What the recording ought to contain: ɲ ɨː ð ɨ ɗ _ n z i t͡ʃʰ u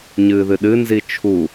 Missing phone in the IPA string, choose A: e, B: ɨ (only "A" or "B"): B